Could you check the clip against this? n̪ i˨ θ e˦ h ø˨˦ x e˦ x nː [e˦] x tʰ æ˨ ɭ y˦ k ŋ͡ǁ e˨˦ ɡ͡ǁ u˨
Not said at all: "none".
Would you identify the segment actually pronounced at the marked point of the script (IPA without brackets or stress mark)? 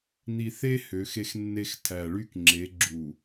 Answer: e˦